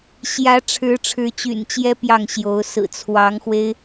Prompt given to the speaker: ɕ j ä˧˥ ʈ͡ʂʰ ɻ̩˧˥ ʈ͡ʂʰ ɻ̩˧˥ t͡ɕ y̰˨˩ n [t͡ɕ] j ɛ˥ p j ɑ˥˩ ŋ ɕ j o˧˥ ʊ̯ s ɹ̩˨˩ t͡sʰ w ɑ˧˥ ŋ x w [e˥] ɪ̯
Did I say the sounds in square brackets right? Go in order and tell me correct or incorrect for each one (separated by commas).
correct, correct